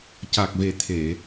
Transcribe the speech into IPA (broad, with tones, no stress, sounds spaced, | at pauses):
c a˨˩ k̚ v e˨˩ t̪ʰ e˨˩˨